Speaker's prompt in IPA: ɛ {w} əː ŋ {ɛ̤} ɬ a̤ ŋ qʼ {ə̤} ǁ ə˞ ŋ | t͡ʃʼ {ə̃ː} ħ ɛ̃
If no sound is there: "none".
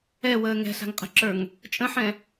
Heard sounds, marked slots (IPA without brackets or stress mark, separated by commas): w, ɛ̤, ə̤, ə̃